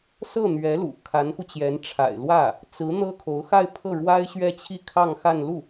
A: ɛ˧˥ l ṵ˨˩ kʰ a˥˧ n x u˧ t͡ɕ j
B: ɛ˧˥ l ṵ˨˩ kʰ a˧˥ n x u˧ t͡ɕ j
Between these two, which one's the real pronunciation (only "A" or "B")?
B